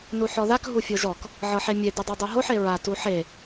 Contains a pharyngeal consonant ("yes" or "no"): yes